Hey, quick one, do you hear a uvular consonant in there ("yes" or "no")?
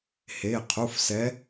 yes